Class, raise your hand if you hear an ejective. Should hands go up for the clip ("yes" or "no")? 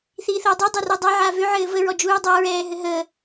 no